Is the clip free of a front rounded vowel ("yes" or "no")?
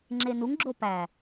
yes